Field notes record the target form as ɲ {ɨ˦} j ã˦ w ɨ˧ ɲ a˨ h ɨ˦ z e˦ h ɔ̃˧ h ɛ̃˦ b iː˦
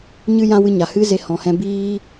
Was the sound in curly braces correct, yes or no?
yes